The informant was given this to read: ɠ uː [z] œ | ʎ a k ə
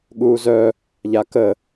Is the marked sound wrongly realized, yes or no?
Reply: no